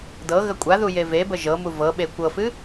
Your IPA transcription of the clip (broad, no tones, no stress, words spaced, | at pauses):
dɤ ɣəkʷʼaðu jevebə ʒɤmu vɤɓe kʷɤfɨ